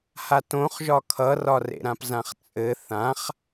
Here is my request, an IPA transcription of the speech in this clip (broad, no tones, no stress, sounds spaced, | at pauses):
h a t õ χ ʒ ɒ kʰ ʌ r ɒ r ḛ ɾ ã p z ã χ t͡sʼ ɘ θ ã χ